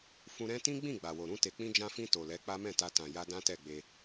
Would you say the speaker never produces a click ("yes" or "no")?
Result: yes